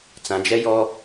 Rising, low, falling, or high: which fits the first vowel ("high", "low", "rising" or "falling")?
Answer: low